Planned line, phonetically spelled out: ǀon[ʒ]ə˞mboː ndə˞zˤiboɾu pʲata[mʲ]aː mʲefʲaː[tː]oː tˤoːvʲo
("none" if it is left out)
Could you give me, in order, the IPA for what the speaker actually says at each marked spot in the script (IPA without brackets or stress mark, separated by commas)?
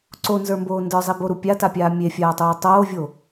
z, pʲ, tˤ